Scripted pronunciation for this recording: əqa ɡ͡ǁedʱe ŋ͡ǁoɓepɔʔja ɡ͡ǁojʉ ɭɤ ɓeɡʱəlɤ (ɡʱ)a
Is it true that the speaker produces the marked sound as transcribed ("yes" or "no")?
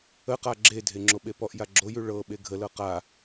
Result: no